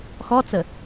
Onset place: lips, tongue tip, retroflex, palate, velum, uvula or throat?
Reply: velum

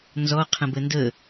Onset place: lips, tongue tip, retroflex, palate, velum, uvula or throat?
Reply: tongue tip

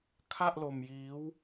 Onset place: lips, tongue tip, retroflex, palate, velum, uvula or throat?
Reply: velum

